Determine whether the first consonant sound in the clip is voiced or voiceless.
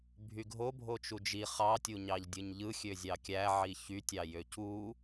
voiced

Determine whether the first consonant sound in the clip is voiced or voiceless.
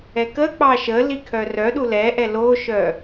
voiceless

